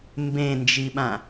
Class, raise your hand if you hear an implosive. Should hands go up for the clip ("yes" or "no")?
yes